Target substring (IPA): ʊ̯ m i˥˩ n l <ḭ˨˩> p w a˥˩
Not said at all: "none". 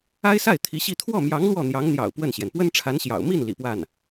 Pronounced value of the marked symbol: ḭ˨˩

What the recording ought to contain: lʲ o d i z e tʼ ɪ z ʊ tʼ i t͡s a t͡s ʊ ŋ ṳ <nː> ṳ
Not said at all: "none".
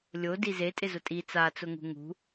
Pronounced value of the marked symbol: ŋ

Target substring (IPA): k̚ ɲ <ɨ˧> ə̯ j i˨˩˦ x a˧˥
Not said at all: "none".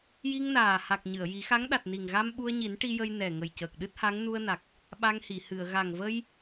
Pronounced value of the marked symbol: ɨ˨˩˨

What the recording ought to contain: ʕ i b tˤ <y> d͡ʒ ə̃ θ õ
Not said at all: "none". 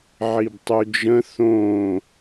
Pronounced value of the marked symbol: y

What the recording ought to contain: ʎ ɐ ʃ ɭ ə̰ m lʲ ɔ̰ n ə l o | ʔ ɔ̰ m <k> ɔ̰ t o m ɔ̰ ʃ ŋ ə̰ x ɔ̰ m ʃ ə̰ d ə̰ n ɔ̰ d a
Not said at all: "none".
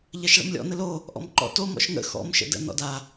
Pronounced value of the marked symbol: ǃ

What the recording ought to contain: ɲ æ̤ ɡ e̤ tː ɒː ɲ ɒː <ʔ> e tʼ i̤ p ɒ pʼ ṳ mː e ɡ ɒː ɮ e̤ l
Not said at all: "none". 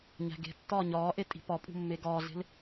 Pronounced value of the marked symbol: ʔ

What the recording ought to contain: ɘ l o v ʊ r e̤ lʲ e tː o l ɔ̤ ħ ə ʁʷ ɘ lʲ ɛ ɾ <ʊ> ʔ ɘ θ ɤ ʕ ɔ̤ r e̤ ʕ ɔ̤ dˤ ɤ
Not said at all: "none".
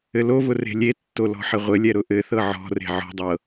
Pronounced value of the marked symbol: ʊ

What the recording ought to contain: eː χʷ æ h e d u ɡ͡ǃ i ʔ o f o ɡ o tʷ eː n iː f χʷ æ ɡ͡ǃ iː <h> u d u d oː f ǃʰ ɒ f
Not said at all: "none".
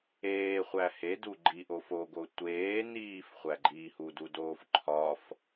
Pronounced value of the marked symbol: h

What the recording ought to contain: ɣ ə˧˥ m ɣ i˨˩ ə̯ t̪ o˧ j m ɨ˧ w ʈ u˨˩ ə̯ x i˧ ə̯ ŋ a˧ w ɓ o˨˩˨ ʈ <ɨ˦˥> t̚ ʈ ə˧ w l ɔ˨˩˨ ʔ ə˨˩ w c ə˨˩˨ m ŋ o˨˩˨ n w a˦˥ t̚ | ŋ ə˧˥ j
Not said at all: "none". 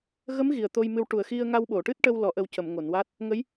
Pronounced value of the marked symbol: ɨ˦˥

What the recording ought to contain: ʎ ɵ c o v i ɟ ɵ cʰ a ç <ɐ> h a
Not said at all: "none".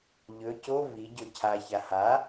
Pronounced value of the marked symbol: a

